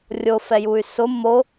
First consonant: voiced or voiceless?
voiced